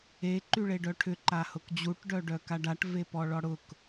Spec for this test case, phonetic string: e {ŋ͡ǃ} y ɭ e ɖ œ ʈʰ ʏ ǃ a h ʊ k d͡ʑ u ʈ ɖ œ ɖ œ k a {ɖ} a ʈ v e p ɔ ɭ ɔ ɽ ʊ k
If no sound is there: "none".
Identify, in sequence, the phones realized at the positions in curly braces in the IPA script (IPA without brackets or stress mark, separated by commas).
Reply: ǃ, ɖ